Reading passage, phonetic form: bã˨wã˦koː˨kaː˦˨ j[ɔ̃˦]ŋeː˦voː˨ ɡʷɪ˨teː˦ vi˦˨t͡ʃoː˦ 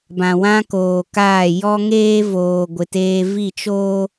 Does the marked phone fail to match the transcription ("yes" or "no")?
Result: yes